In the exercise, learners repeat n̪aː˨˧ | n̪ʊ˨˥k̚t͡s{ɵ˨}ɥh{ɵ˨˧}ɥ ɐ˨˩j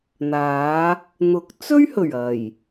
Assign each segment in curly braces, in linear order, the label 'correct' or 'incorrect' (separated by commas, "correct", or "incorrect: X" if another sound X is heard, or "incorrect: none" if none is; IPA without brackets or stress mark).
incorrect: ɵ˥, incorrect: ɵ˨˩